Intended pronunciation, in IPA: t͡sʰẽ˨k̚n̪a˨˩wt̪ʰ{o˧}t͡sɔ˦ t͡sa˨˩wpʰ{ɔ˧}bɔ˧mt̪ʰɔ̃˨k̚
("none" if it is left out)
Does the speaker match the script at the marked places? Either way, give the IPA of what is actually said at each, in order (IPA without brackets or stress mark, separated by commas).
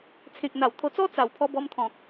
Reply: o˧, ɔ˧